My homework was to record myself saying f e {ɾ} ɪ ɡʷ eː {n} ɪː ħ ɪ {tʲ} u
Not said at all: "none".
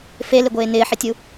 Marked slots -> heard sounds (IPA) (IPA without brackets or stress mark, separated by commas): l, n, tʲ